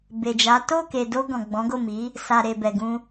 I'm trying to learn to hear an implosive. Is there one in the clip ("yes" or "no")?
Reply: no